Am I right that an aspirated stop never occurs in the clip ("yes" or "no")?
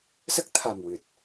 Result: no